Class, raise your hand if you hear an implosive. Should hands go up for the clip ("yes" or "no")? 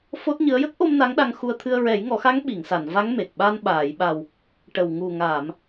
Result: yes